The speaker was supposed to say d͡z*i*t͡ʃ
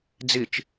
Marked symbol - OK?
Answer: yes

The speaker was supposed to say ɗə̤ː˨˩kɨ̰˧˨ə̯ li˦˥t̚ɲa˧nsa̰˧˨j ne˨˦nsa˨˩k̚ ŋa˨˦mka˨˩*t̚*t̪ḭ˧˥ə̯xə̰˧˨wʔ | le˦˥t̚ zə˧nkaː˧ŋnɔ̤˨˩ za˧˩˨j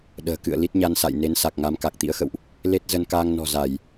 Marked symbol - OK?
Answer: no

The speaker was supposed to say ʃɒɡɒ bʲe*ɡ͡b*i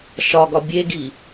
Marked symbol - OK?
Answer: no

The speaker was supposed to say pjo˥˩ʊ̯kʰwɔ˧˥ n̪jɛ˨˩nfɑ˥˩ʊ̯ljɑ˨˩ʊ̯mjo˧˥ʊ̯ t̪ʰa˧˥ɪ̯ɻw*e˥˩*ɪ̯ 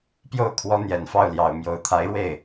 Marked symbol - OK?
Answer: yes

